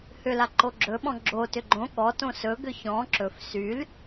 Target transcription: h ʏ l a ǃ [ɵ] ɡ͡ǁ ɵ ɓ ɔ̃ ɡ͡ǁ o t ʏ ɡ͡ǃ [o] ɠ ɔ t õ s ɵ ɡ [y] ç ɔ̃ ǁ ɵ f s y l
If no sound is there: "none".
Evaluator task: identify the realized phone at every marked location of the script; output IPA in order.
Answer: o, õ, ʏ

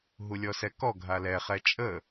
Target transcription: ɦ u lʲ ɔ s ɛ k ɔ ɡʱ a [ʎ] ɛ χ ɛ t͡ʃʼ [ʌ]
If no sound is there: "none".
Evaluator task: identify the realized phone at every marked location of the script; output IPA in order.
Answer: l, ə

